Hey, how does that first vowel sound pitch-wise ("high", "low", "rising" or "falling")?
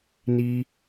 high